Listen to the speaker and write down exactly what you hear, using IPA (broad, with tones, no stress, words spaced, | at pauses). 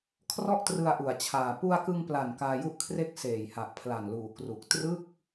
kʰrɔ˥˩ʔtrɯ˧a̯ʔu˩˦a̯t͡ɕʰaː˨˩ pu˧a̯kɯ˧ŋpla˨˩n kaː˧ju˥˩ʔkʰre˥˩k̚ seː˨˩jha˨˩ʔpʰla˨˩nluː˨˩ kru˨˩k̚ trɯ˥˩k̚